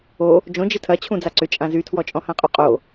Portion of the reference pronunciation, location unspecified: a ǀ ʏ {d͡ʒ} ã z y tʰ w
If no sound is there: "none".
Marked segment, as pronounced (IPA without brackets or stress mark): t͡ʃʼ